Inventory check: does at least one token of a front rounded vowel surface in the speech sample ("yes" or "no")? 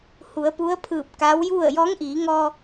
no